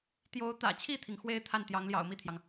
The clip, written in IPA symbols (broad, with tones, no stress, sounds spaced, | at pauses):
t̪ j o˧˥ ʊ̯ t̪ ä̰˨˩ t͡ɕʰ i˥˩ t̪ʰ i˩ ŋ x w e˥ ɪ̯ t̪ʰ a˥˩ n t̪ j ɑ˧˥ ŋ l j ɑ̰˨˩ ʊ̯ m i˥˩ t̪ʰ j ɑ˩ ŋ